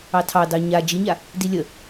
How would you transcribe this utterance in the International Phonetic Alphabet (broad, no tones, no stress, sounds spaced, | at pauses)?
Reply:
ɑ tʰ ɑ d ɑ ɲ a d͡ʒ i ɲ a | d i lʲ ə